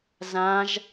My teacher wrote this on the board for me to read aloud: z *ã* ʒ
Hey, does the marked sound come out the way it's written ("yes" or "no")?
yes